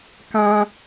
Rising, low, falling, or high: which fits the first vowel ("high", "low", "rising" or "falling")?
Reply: high